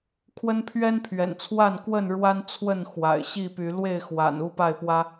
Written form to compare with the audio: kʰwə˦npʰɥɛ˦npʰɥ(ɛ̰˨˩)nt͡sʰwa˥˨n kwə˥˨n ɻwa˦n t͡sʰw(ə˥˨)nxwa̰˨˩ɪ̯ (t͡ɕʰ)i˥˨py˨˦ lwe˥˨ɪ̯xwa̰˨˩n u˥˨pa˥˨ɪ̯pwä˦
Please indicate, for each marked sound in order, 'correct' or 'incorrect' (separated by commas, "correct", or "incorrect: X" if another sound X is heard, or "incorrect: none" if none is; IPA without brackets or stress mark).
correct, correct, incorrect: ɕ